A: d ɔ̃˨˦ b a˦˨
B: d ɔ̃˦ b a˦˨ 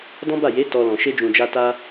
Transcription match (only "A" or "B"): B